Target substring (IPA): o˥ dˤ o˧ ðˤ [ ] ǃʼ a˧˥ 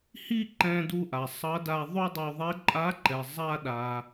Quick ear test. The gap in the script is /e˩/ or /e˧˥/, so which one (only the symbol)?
e˧˥